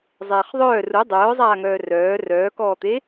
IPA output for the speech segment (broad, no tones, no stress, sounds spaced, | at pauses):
zˤ eː χ ðˤ œː r u dˤ œː zˤ aː ŋ œː r œː r œː k ɔː t̪ e